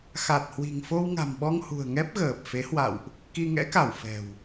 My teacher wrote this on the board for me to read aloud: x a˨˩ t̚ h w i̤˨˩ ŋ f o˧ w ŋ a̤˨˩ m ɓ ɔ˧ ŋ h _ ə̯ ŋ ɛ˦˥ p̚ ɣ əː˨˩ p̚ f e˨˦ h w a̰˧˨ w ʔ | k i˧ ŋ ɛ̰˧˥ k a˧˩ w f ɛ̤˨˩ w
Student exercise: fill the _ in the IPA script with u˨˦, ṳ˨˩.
ṳ˨˩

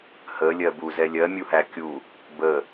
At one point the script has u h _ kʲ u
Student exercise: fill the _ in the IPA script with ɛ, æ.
æ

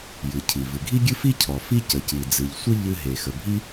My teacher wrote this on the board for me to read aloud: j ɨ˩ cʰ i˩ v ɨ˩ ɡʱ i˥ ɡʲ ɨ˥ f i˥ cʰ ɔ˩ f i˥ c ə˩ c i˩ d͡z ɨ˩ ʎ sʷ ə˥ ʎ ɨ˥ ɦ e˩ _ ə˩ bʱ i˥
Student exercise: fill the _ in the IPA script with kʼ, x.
x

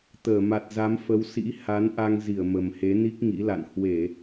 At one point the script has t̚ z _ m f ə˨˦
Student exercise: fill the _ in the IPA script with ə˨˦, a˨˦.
a˨˦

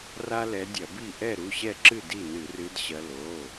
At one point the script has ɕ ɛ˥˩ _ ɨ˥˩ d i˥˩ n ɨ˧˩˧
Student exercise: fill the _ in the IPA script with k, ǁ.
ǁ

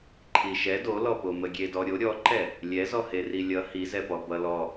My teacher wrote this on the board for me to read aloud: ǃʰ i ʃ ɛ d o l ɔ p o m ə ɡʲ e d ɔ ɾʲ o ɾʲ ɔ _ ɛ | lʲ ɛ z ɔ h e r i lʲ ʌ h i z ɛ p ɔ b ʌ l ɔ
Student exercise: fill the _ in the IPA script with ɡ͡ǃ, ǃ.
ǃ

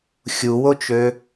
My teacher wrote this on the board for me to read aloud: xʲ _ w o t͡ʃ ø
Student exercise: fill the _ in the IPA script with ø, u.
u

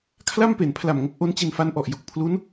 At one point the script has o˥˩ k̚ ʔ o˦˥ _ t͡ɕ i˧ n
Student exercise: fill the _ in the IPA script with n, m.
n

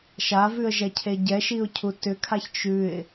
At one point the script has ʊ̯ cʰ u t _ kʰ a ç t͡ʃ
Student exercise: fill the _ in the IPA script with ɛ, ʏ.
ʏ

